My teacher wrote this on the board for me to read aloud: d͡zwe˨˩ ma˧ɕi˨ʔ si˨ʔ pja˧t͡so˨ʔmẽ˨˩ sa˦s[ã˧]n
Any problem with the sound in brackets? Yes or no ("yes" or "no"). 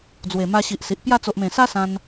no